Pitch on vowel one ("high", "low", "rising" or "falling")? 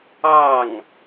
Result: falling